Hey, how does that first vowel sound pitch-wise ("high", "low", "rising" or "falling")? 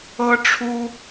high